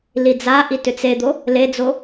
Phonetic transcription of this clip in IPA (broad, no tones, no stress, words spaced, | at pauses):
lid͡zaʔi tʏt͡sed̪o | led͡zo